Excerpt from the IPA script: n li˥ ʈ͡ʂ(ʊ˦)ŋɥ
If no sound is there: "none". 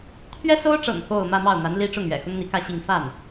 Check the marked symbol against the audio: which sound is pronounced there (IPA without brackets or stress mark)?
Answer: ʊ˥˩